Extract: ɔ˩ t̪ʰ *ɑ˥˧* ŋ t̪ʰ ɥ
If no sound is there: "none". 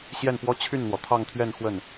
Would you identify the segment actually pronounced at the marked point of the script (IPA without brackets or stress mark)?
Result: ɑ˥˧